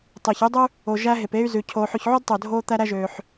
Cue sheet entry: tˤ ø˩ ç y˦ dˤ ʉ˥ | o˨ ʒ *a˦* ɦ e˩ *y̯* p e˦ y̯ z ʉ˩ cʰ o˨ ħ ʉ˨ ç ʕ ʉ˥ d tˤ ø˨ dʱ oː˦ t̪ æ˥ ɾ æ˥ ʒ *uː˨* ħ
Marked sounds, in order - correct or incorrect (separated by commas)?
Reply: incorrect, incorrect, incorrect